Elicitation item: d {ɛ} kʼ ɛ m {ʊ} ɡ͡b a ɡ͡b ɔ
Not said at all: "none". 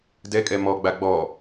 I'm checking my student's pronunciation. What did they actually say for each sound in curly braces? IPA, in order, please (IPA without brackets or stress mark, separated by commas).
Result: ɛ, ɔ